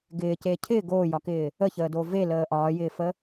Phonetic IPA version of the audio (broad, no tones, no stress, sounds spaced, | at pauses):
ɡ ɪː c eː cʰ ɪː ɡ oː j ɒ k ɪː | ə ç əː d o v e l əː ʔ ɒː j ɪː f ə